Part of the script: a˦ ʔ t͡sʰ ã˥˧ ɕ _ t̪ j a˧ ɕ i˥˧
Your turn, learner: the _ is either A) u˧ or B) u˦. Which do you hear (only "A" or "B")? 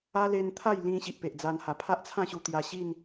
A